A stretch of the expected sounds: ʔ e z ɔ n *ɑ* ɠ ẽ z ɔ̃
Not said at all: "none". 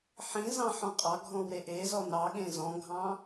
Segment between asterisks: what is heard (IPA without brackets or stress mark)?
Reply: ɑ